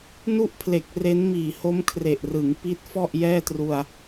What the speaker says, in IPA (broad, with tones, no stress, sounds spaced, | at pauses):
n u˥˩ ʔ pʰ l e˨˩ k̚ r e˦˥ n m iː˨˩ h o˦˥ m kʰ r e˨˩ ʔ r ɯ˩˦ ŋ p i˦˥ t̚ f ɔ˥˩ ʔ j ɛː˥˩ t r u˧ a̯